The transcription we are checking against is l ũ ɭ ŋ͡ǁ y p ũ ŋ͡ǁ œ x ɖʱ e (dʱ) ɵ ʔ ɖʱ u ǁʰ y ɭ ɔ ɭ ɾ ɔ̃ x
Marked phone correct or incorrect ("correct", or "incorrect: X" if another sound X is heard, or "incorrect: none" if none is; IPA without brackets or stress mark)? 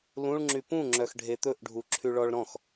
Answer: incorrect: t̪